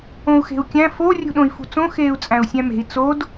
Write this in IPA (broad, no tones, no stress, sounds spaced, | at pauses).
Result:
õ u̯ x e̤ u̯ kʲ æ̃ f o rʲ ṳ ɗ õ i̯ f ṳ t͡s õ x eː u̯ t͡sʼ æ̃ u̯ sʲ æ̃ m e̤ i̯ t͡s o d